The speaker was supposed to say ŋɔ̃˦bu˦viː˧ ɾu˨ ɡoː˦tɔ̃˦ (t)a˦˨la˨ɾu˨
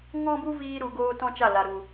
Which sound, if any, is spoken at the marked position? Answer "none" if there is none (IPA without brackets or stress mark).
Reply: t͡ʃ